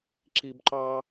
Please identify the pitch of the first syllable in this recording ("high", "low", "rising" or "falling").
high